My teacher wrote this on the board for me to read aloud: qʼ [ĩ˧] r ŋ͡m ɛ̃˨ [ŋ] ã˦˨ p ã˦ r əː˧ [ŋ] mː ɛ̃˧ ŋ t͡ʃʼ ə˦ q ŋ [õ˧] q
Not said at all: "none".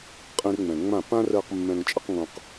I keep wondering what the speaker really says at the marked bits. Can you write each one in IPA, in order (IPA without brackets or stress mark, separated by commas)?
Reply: ĩ˧, ŋ͡m, q, õ˧